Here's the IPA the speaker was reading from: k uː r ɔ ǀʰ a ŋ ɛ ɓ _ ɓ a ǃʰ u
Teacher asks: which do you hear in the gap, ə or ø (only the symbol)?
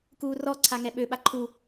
ø